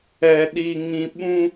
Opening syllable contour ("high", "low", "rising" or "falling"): low